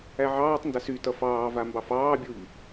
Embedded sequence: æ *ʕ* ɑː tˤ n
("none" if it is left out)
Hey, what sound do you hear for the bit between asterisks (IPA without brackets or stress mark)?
ʕ